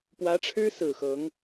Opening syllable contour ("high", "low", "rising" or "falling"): rising